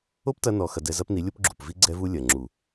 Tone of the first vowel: high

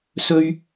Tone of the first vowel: high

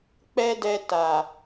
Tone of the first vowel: high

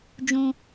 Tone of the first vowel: high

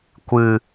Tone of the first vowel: low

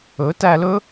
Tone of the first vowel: rising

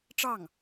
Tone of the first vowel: falling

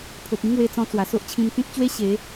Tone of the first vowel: low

